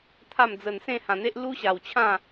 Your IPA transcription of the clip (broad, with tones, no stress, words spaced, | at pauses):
t̪ʰa˥˧md͡zə˧n sẽ˥˧hã˧n̪e˦ʔ lu˦ɕa˧w t͡ɕʰã˥˧